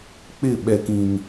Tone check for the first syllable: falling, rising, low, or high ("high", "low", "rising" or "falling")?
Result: falling